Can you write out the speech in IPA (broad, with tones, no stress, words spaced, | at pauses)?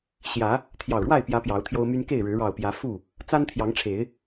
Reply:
ɕjä˨˦ | t̪ʰjɑ˨˩ʊ̯ɻwa˥˨ɪ̯pjä˨˦ pjɑ˨˦ʊ̯t̪ʰjo˦ʊ̯my˦n ke˥˨ɪ̯ɻɻ̩˨˦ ɻɑ˨˩ʊ̯pjä˨˦ fu˥˨ | t͡sa˦nt̪ʰjɑ˨˦ŋʈ͡ʂʰe˨˦ɪ̯